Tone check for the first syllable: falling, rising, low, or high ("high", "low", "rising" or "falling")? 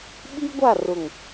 high